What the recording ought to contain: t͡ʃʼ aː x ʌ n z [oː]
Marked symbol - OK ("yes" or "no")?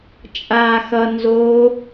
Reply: yes